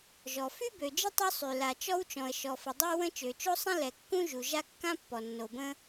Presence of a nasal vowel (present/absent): present